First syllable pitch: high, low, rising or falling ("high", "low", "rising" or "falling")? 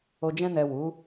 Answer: low